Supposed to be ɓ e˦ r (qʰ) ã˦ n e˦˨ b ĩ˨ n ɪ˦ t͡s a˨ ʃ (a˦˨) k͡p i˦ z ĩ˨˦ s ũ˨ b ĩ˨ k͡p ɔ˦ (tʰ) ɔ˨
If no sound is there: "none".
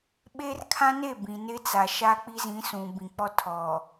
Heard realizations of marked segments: kʰ, a˦, tʰ

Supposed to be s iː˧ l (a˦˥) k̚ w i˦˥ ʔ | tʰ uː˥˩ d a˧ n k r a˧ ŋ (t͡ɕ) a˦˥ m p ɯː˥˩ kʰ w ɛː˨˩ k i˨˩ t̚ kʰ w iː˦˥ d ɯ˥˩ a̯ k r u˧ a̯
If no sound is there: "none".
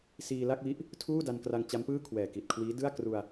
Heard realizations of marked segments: a˥˩, t͡ɕ

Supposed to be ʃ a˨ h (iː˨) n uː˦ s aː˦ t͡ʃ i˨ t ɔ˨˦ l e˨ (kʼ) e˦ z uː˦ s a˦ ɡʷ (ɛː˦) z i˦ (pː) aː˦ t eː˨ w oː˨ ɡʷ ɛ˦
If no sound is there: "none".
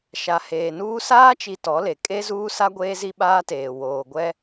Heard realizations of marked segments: eː˨, kʼ, eː˦, ɓ

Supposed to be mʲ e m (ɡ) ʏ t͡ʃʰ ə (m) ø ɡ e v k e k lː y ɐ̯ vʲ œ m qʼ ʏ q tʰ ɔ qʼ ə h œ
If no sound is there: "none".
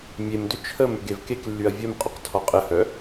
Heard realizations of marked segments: d, m

